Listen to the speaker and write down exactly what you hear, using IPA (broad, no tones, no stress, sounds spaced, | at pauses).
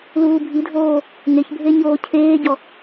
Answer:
l uː bʱ i dʱ oː | ŋ e ç bʱ e ɲ oː cʰ eː ɟ ɔ